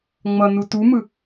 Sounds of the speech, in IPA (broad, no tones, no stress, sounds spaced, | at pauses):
ŋ͡m ʌ n u t u m ɯ